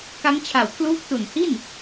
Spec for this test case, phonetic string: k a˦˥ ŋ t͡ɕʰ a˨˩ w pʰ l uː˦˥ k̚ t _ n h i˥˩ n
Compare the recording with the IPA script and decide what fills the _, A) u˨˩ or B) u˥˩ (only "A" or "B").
A